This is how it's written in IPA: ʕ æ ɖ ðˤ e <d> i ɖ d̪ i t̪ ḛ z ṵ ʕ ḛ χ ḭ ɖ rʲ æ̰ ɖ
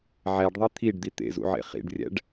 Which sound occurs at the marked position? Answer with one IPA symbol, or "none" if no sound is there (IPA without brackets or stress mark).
t̪ʰ